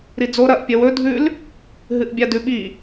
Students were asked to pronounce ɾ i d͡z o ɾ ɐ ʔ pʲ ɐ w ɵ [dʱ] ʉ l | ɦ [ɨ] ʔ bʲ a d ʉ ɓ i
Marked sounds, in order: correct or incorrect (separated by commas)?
correct, correct